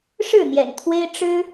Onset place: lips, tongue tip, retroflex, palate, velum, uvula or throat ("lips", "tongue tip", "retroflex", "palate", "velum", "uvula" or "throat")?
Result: retroflex